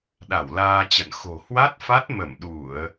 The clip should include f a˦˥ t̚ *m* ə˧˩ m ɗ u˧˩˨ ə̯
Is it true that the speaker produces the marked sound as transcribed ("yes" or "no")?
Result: yes